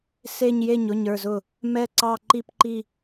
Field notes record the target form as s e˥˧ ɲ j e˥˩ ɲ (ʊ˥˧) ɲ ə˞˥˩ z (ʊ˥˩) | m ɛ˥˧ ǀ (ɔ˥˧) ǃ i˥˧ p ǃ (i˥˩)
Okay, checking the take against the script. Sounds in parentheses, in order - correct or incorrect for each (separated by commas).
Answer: incorrect, correct, incorrect, incorrect